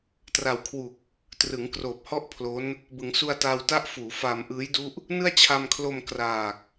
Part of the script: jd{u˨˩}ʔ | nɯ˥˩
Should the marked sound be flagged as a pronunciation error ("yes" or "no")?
yes